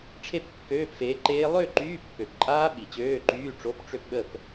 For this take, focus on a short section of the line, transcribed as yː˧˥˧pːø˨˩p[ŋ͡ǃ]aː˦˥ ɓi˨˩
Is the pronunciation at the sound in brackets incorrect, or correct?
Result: incorrect